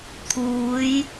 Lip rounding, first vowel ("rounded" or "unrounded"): rounded